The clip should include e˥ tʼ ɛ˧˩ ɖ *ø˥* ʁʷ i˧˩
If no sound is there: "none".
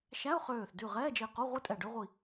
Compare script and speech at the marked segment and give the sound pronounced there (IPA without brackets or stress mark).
ø˥